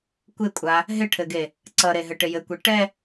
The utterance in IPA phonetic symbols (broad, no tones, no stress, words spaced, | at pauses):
kʷɪkʷʼa | ɦɪʈʰɘɡe | ǀʌɾeɦɘ ʈɪjɘkʷi ʈɛ